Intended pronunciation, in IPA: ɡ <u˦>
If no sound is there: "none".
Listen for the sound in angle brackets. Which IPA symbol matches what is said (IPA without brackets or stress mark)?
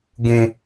ũ˦